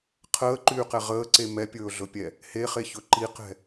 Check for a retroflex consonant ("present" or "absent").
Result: absent